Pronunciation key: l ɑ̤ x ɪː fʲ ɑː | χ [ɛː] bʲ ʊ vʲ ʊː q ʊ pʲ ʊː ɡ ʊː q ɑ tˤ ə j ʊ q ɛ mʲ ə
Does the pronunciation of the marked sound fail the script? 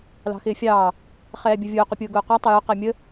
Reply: no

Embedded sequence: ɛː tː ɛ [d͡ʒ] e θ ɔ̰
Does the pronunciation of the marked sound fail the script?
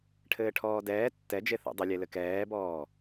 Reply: no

